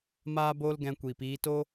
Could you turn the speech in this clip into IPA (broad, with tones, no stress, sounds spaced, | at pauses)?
m aː˦ b oː˦ l ɡ ɛ̃˧ kʷ iː˨ p iː˧ t o˦